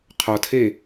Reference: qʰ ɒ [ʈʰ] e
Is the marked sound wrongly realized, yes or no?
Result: yes